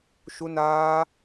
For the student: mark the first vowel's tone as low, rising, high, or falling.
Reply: high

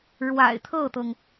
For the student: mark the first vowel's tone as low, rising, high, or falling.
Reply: low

